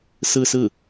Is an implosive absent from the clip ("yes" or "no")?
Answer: yes